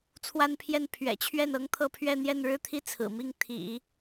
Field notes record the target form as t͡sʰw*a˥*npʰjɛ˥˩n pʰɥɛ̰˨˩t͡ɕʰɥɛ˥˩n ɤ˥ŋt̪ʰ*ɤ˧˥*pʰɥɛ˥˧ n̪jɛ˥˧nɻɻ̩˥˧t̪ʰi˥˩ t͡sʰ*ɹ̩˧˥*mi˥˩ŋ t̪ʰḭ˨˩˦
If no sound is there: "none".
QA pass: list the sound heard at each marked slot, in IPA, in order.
a˥, ɤ˥˧, ɹ̩˨˩

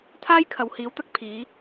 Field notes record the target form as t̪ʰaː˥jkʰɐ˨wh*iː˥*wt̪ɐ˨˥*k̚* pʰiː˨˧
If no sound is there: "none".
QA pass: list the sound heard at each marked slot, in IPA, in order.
iː˨˥, k̚

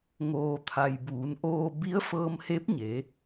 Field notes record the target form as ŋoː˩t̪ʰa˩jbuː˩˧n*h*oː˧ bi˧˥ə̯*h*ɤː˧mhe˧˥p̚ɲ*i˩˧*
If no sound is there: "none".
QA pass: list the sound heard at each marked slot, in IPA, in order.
ʔ, f, e˩˧

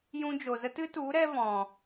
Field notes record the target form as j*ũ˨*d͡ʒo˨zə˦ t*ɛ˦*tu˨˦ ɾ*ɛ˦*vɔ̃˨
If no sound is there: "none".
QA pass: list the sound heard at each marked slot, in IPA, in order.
ũ˧, ɨ˦, ɛ˦

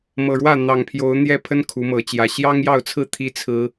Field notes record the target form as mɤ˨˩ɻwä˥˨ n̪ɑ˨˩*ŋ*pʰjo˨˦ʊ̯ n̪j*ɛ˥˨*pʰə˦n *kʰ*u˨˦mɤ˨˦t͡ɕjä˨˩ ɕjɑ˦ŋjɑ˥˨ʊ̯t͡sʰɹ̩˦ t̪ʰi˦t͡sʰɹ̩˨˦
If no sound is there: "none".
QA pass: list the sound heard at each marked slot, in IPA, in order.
ŋ, ɛ˦, kʰ

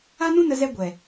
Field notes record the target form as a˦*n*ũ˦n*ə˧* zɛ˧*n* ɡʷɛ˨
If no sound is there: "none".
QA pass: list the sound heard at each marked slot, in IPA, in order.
n, ə˧, none

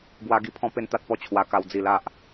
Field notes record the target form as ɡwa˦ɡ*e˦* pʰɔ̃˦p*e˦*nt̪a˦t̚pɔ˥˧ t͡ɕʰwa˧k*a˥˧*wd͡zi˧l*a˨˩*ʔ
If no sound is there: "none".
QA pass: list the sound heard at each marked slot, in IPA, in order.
i˦, e˦, a˧, a˦

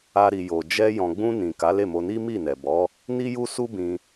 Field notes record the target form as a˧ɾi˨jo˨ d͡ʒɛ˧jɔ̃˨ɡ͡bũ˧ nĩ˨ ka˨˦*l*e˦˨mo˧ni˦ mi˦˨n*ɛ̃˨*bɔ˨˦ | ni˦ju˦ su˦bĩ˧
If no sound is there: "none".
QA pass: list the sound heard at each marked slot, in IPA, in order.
l, ɛ˨

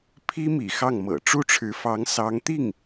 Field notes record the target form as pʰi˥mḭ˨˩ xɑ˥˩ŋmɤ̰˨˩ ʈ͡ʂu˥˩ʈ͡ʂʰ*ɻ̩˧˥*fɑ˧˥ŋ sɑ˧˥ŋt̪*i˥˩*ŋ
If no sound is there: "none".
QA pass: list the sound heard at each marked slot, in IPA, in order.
ɻ̩˧˥, i˥˩

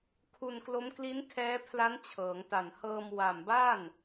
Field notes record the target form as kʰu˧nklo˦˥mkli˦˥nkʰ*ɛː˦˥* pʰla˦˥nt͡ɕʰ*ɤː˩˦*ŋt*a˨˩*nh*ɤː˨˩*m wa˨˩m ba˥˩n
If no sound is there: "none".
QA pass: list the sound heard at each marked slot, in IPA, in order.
ɛː˦˥, ɤː˩˦, a˨˩, ɤː˧

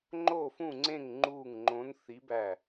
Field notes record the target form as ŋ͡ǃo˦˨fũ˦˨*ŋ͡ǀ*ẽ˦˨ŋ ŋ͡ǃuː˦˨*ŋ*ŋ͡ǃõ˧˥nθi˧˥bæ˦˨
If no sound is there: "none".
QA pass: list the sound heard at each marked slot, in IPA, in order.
ŋ͡ǀ, ŋ

